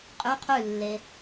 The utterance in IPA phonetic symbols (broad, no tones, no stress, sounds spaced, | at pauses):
qʼ ʉ qʰ ʉ lː e